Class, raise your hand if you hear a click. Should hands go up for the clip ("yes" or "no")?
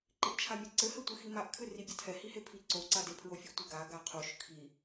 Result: yes